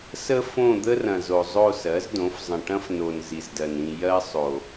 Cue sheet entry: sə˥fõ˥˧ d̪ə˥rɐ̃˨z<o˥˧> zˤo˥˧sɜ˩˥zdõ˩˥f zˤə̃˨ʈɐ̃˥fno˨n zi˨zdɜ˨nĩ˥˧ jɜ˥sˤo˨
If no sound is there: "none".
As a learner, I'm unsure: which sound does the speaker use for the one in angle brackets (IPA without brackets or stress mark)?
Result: o˨